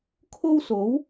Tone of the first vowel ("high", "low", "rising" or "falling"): high